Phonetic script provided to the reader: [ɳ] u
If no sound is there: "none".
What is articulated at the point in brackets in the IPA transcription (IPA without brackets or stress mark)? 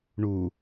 ɳ